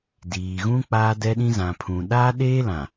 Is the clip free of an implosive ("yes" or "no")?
no